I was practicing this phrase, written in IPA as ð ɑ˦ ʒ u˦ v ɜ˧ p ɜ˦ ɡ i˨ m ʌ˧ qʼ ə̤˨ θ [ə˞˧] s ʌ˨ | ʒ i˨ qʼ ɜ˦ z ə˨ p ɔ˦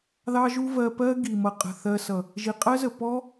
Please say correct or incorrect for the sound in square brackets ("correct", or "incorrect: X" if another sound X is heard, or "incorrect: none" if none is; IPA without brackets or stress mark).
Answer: incorrect: ɜ˧